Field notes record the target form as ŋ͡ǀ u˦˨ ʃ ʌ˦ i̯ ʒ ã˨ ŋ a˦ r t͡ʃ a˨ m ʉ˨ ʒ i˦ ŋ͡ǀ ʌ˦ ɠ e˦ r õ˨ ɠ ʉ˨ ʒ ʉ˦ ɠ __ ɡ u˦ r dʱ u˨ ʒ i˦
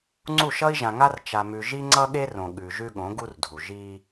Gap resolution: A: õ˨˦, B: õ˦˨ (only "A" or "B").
A